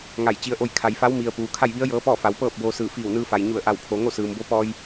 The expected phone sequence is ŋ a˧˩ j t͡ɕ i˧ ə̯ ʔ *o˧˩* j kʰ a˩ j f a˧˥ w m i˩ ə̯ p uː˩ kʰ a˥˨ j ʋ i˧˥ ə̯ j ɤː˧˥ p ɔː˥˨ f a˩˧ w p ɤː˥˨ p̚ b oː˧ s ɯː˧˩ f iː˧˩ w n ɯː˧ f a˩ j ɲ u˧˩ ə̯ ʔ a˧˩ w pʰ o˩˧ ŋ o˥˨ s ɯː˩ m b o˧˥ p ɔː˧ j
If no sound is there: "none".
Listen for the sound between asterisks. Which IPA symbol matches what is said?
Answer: o˥˨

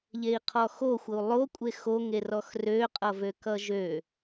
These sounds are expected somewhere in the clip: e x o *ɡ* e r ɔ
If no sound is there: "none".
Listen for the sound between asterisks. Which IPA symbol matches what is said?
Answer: ŋ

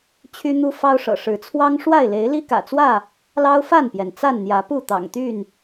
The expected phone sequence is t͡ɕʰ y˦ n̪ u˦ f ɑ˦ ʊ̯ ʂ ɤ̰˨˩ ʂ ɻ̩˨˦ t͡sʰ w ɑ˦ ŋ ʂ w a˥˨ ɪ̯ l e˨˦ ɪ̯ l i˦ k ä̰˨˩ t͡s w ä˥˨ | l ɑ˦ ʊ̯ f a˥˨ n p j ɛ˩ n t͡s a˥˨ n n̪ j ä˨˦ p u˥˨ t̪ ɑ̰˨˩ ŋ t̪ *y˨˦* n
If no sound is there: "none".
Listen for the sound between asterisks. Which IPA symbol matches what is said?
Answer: y˥˨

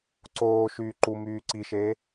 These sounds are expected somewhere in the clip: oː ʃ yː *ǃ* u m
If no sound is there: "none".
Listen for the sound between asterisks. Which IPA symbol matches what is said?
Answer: ǃ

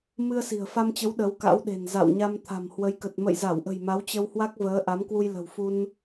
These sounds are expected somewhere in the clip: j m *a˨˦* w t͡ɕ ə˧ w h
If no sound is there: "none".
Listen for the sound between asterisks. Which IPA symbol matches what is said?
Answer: a˨˦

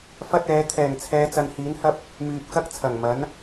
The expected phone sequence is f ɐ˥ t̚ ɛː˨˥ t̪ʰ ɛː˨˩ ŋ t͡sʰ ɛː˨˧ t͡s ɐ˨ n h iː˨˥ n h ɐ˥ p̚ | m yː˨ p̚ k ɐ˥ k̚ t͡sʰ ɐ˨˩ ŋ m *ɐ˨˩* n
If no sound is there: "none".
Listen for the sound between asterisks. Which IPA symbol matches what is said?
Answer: ɐ˨˥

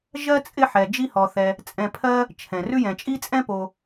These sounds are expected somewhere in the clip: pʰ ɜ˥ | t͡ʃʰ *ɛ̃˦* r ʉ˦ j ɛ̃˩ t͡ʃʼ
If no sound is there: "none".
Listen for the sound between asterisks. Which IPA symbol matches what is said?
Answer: ɛ̃˩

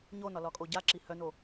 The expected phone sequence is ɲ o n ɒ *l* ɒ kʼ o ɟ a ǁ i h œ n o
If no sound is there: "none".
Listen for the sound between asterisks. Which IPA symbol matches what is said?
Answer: l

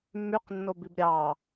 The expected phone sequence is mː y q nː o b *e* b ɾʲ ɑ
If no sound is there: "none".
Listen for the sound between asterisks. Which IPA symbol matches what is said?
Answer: i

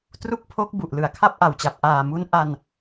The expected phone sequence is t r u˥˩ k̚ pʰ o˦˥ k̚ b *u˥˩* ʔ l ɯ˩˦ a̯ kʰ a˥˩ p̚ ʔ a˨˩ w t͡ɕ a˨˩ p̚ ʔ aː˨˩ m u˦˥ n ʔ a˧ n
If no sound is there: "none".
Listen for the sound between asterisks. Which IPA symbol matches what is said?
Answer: u˨˩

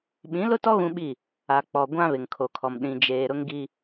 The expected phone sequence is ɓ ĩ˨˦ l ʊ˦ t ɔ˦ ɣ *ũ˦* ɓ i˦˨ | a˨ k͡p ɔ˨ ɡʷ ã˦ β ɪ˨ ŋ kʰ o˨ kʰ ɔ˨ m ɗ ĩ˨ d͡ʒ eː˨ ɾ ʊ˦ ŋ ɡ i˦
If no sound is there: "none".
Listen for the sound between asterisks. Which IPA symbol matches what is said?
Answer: ũ˦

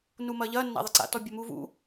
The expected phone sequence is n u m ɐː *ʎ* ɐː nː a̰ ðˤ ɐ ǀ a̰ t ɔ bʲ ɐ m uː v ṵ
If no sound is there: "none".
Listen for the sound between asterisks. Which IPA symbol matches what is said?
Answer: ʎ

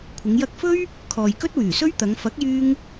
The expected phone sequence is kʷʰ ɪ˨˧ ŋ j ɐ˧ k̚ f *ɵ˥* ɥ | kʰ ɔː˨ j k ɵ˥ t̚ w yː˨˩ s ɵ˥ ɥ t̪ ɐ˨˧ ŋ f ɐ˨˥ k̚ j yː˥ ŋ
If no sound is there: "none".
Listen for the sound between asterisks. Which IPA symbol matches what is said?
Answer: ɵ˥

